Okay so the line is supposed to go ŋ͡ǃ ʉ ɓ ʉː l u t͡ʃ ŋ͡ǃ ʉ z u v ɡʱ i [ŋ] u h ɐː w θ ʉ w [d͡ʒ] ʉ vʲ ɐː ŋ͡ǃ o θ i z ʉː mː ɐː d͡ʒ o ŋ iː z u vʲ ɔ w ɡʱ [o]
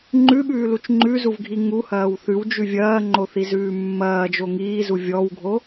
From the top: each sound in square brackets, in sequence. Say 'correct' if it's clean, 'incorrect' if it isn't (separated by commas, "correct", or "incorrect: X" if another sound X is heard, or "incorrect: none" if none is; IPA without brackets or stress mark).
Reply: correct, correct, correct